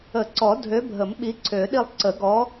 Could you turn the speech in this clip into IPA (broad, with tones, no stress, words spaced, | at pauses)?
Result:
ə˨˩˦ǀɔ˨˩˦dʱø˨˦bʱə˨˩˦m ɓi˨˦ǀʰø˨˩˦ɗi˦˨lˠ ǀə˨˩˦ɡɔ˨˦